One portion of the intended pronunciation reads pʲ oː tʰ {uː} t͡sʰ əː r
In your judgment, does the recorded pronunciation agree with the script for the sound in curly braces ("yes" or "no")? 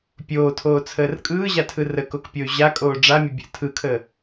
no